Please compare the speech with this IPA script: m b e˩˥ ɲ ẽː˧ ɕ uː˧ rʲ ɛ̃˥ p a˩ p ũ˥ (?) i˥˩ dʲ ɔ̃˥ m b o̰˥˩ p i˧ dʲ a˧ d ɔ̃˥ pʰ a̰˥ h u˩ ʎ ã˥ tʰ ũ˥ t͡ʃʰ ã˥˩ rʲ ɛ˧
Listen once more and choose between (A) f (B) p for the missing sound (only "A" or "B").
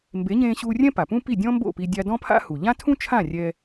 B